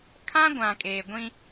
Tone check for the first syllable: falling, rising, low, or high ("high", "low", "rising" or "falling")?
high